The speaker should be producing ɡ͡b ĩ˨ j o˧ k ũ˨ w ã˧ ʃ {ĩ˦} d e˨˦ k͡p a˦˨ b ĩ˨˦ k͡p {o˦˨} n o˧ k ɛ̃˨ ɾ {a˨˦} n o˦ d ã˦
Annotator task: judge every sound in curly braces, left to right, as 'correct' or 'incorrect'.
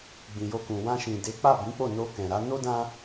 incorrect, correct, correct

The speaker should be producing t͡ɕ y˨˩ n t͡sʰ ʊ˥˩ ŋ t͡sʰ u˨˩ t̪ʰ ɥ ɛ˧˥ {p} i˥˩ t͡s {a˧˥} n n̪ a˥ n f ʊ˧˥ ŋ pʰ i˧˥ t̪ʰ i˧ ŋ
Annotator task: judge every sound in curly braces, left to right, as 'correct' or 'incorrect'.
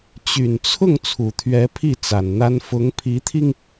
incorrect, incorrect

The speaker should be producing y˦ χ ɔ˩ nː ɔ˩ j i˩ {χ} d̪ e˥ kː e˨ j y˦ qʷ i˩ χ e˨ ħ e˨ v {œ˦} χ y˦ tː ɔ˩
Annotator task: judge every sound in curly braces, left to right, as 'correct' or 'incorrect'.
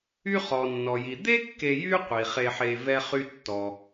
incorrect, incorrect

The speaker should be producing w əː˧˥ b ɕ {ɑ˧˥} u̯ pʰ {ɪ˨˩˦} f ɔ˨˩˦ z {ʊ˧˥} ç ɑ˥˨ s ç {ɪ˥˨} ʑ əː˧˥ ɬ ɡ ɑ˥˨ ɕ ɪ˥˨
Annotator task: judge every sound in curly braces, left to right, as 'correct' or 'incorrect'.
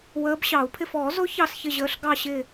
incorrect, incorrect, correct, correct

